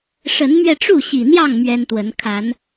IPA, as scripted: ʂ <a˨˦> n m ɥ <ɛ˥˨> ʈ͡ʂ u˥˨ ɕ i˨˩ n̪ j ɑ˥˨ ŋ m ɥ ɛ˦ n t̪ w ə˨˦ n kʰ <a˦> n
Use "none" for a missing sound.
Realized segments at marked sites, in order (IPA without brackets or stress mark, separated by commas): ə˨˦, ɛ˧, a˨˦